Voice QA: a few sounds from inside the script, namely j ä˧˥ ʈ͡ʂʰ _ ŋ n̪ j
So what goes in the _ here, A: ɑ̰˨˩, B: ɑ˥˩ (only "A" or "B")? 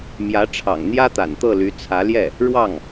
A